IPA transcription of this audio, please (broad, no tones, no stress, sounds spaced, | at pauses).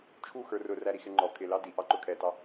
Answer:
t͡ʃʰ u x ə˞ r ʊ r æ ɾ i x ɪ ŋ͡ǃ ɔ kʰ ɪ l ɑ d i ʔ ɑ ǃ ʊ kʰ ɛ t ɑ